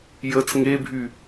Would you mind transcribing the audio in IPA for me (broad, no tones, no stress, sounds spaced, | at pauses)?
j ə t͡s ŋ e bʱ y